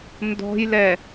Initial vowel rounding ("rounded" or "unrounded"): rounded